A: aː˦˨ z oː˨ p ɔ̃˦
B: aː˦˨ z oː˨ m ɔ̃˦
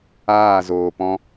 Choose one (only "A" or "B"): A